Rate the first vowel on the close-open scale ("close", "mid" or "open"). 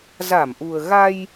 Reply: open